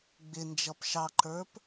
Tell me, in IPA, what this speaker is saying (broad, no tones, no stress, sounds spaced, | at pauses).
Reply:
ɡ͡b ɪ n d͡ʒ ʌ p ʃ ɑ ǃ ə˞ p